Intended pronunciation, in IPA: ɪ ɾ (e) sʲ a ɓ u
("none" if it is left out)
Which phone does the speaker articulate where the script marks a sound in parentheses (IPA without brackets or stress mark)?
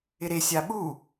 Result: e